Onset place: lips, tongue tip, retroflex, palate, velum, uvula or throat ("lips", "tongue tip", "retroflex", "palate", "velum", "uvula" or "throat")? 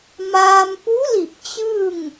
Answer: lips